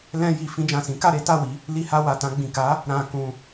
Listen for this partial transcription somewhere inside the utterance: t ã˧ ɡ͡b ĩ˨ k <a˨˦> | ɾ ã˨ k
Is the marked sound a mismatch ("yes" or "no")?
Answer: no